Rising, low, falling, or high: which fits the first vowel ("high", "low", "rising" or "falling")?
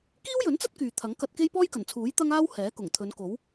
high